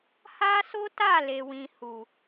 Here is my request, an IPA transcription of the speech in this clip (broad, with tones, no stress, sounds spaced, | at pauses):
h a˦ s o˦ t a˦˨ l e˨ w ĩ˨ h u˨